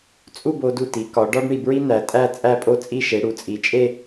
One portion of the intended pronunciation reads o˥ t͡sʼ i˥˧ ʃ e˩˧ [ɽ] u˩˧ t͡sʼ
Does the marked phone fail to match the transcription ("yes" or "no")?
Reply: no